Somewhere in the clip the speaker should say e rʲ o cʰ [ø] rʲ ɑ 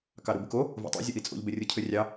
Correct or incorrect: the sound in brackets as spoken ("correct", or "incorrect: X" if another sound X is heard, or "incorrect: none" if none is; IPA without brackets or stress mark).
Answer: correct